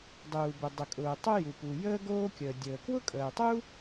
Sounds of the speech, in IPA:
dˤuː˩bʊ˩ dˤə˩kʼʊː˩ tˤʊ˥ju˩pu˩ jəː˥ɡoː˥kʲəː˩dʲəː˩ kwʊ˥kʼəː˩tˤu˥

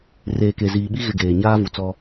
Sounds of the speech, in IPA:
reː˨ke˨ziː˨ɓi˦ ɣɪ˦˨ɡeː˨ ɲaː˦vu˨t͡sɔ˦

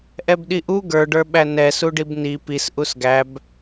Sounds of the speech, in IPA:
ʔɛbɗiʔu ɡə˞ɖə˞ɓæ nɛsuɖib ni pis ʔusɡæb

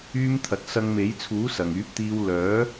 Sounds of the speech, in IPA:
yː˥mt̪ʰɐ˨˥t̚ sɐ˧ŋme˨˥j t͡sʰuː˨˥ sɐ˨˩ŋyː˨˥p̚t̪iː˧w lœː˨˥

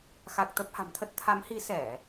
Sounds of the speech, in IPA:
xa˨˩k̚ t̪ə˦˥p̚ha̤˨˩mt̪ʰə˦˥t̚ t̪ʰa˨˦mhi˨˦ sɛ˧˩˨

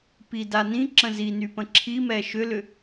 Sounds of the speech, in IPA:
pida nĩǁə̃ zinypə̃ ǁʰimɛ ʃʏlʏ

